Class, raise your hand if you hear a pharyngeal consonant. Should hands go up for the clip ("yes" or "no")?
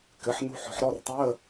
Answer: yes